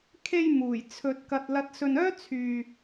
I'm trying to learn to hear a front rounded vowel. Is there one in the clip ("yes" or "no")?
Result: yes